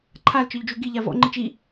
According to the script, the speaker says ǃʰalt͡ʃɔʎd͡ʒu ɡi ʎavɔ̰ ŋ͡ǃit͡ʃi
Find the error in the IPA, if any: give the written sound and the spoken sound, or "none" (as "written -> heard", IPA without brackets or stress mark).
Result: none